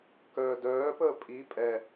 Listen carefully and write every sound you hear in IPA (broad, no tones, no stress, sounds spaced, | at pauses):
k œː d œː p əː pʼ i pʼ ɛ